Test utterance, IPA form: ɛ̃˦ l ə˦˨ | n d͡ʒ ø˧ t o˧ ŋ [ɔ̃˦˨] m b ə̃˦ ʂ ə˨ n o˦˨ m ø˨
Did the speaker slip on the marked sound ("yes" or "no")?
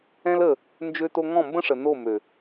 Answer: no